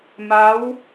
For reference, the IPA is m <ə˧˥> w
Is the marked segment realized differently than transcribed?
yes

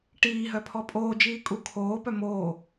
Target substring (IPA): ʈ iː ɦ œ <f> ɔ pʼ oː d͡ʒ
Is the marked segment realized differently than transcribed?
yes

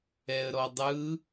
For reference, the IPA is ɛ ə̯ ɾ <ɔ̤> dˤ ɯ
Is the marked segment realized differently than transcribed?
yes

